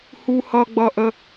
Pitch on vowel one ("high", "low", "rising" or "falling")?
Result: high